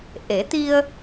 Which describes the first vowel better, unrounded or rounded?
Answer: unrounded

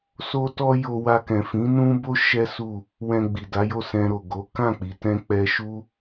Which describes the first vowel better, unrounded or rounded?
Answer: rounded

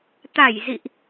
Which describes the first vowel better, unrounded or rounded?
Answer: unrounded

